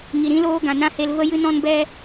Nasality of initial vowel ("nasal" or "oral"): oral